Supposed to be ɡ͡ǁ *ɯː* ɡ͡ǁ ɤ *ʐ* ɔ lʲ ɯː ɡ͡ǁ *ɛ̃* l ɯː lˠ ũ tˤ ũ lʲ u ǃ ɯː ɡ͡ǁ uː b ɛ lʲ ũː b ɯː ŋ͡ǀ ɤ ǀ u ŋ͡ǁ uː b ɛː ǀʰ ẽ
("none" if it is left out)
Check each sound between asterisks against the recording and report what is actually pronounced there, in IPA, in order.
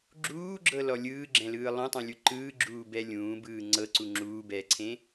uː, l, ɛ̃

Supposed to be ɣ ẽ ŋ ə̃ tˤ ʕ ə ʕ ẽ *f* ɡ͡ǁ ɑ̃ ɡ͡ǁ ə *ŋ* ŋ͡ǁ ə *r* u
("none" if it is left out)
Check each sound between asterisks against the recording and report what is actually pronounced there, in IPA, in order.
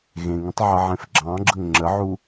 f, ŋ, ʕ

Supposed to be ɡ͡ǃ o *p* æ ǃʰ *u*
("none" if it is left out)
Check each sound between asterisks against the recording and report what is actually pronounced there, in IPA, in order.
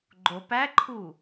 p, u

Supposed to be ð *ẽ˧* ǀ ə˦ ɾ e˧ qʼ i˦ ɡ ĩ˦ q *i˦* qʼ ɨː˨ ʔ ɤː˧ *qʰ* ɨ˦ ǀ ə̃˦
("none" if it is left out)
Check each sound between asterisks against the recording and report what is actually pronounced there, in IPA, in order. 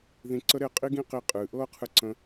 ĩ˧, i˧, qʰ

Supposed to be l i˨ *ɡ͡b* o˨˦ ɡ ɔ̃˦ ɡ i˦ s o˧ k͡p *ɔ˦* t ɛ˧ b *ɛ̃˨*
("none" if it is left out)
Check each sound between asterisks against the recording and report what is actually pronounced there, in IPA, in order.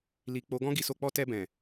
k͡p, ɔ˦, ɛ̃˨

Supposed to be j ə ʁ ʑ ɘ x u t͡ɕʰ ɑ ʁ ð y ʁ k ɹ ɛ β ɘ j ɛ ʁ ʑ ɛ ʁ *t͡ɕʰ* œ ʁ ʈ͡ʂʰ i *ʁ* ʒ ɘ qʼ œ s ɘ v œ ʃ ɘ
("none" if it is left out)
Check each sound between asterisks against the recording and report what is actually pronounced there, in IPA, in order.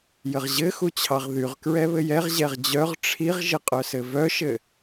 d͡ʑ, ʁ

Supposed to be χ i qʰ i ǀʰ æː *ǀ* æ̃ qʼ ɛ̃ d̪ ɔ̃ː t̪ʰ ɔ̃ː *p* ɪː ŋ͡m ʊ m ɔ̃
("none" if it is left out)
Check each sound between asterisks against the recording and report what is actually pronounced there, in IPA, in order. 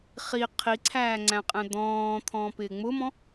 ŋ͡ǀ, p

